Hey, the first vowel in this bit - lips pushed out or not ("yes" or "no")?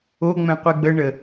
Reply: yes